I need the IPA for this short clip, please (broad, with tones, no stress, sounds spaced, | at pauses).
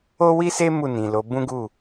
o˦ w i˦ s e˦ m u˦˨ n ĩ˨ l o˨˦ b ũ˦ ɡ u˦˨